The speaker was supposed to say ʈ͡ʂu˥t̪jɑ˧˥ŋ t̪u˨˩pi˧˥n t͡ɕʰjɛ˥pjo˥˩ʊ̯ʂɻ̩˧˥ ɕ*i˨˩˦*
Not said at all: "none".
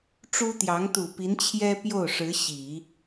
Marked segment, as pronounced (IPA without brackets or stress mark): i˨˩˦